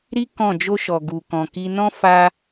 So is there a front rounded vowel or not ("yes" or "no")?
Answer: no